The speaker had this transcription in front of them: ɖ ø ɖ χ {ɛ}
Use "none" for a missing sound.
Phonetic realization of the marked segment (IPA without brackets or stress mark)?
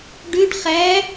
æ